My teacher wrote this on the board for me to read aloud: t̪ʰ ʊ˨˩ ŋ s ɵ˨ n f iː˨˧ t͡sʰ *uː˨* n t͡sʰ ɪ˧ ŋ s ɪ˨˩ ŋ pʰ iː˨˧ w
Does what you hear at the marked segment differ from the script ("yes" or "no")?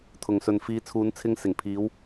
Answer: yes